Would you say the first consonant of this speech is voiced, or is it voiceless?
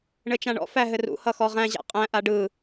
voiced